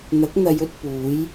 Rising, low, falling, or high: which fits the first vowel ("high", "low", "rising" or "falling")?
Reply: rising